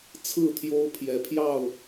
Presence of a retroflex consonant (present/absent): absent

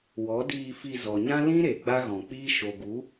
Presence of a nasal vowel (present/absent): present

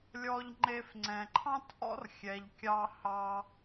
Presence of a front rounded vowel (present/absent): absent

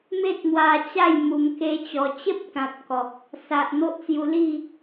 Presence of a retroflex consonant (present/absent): absent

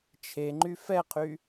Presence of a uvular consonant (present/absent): present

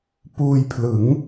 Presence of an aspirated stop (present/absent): present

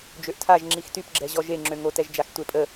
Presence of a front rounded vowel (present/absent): present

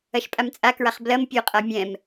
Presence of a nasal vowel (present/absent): present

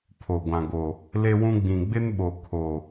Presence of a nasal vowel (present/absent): present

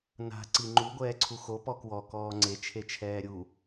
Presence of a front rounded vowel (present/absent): absent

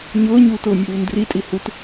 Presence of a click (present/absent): absent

